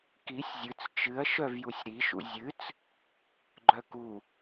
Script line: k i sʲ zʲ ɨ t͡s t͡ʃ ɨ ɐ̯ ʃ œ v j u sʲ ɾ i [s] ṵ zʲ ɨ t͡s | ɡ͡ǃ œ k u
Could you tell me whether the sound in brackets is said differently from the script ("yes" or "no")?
yes